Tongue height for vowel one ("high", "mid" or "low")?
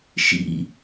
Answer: high